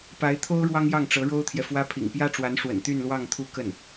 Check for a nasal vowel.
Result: absent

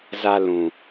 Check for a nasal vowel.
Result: present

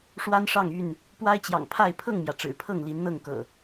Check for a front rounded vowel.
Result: present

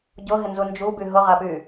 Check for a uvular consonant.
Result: present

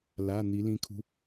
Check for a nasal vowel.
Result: present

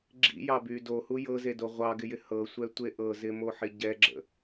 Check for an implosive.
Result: absent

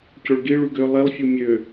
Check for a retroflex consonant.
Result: present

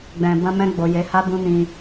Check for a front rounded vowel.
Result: absent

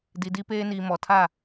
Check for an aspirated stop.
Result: present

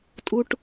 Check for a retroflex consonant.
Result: present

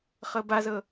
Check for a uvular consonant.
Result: present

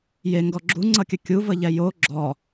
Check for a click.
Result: present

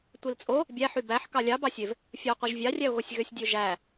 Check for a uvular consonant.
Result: present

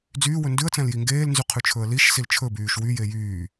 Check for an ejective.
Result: absent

